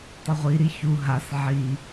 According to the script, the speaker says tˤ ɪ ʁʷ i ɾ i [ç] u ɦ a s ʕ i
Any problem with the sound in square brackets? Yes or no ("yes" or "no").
no